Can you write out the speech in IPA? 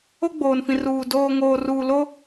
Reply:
o˦ ɡ͡b oː˨ n f ĩ˨ r uː˨ d oː˨ ŋ oː˨ r uː˨ l o˦

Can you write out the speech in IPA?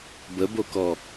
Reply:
b ə b o k ɔ

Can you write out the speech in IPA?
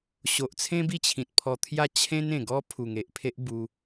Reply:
ɕ o˨ ʔ t͡sʰ ẽ˦ b i˥˧ t͡ɕʰ ĩ˨ t̚ pʰ ɔ˧ t̪ʰ j a˥˧ t͡ɕʰ ẽ˦ n ẽ˨˩ ɡ ɔ˦ pʰ u˨˩ ŋ e˨ ʔ pʰ e˦ ʔ b u˧

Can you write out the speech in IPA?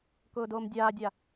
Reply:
k ʊː d oː m dʲ aː dʲ a

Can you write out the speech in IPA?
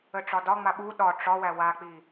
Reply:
ə ʈ͡ʂ ɒ d ɒ ŋ͡m a ɓ u ɗ ɒ ʈ͡ʂ ɒ w æ w a k͡p i

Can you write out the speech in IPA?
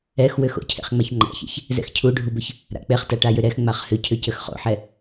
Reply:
ɛ x w ʏ x o̰ cʰ ḛ χ ŋ͡m a ç ŋ͡ǃ a̰ ç ɛ̰ ç | z ɛ̰ x cʰ u ɖʱ u b ʏ ç | ɾ a̰ k͡p e χ t a ʈ a j ʏ ɾ ɛ x ŋ͡m a χ h ʏ cʰ ʏ c ə x χ o̰ ħ ɛ

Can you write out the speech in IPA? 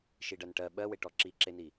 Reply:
ʃ i ɖ ɜ n ʈ ɜ ɓ ɜ w e ʈ ɔ ǁ i ǁ e n i

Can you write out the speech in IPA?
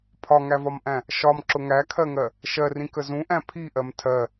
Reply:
pʰ ɒ ŋ æ v ɒ m ʔ æ̃ | ʃ ɒ m ǁ ʊ ŋ æ kʰ ɜ ŋ ɜ | ʃ ɜ r ĩ k ə z ũ ʔ æ̃ pʰ i ʔ ɜ m tʰ ɜ

